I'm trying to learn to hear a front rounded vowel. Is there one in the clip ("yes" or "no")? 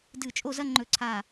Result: no